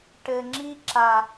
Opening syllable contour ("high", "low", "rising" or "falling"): low